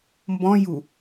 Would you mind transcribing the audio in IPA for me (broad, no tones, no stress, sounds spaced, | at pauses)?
m b ɔ̃ j u